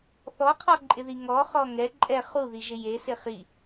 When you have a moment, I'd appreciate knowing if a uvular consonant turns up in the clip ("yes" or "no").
yes